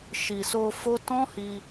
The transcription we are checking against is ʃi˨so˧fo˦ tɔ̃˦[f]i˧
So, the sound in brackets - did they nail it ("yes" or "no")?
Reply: no